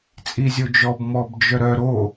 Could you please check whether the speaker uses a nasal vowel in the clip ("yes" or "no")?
no